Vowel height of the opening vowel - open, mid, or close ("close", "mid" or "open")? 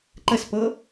mid